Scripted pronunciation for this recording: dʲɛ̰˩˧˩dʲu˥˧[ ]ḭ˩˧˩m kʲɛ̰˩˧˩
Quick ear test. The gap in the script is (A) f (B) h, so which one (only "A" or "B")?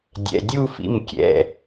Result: A